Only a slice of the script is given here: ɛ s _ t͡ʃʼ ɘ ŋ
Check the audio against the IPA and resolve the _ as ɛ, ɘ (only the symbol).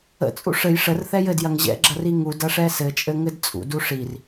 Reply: ɘ